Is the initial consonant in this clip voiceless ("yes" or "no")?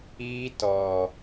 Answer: yes